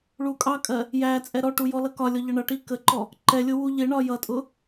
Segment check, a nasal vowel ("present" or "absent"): absent